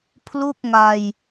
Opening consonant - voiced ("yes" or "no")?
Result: no